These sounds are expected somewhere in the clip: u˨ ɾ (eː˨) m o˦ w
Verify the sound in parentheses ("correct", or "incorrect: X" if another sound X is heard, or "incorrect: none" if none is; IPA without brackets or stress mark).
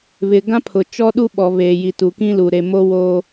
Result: incorrect: e˨